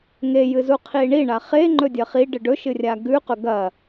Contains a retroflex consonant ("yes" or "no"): yes